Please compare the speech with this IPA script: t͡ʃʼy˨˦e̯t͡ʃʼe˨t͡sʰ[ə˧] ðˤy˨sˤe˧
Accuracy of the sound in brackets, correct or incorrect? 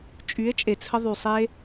correct